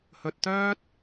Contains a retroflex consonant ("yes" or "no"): no